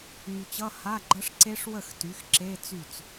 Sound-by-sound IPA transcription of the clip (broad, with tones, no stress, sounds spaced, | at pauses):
ŋ y˨ t͡ɕ ʌ˧˥˧ h a˧˥˧ ɡ͡ǃ ʌ˦˥ ʂ ǀ e˦˥ ʂ w ə˥˩ x t y˩˥ x ǁ e˧˥˧ t͡s y˥˩ t͡s